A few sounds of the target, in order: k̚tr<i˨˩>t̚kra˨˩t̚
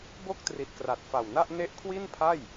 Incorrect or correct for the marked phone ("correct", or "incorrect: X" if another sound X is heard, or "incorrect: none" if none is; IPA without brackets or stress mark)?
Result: correct